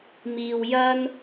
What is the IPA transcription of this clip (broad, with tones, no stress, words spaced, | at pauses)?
miː˧wjɐ˥n